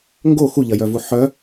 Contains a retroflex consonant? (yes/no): no